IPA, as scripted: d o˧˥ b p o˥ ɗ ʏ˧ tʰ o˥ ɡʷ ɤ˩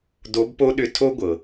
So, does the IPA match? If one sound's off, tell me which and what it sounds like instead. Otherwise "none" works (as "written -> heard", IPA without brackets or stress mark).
none